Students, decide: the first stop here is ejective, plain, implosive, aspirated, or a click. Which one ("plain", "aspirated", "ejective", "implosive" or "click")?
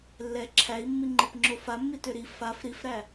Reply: click